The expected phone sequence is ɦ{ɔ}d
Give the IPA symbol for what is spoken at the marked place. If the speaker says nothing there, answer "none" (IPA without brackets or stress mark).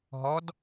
ɔ